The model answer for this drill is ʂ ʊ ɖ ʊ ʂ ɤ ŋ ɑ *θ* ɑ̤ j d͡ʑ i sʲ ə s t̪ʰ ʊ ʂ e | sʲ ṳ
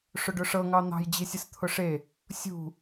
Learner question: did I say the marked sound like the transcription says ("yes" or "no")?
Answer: no